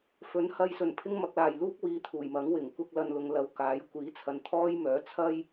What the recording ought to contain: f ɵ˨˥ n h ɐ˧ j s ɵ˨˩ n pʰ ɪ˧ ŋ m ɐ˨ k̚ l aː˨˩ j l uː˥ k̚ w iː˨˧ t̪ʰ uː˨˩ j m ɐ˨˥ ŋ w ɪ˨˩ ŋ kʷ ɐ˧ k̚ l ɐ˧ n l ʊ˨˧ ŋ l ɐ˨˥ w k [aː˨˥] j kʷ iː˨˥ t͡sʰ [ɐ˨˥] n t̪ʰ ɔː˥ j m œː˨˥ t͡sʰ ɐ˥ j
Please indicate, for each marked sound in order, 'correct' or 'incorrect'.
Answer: correct, incorrect: ɐ˨

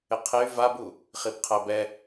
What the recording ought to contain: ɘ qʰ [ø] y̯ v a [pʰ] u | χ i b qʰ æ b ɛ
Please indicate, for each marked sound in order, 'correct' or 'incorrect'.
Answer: incorrect: e, incorrect: b

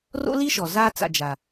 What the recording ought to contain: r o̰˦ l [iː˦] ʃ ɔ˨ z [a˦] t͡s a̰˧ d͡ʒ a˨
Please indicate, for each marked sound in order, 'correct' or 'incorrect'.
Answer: incorrect: i˦, correct

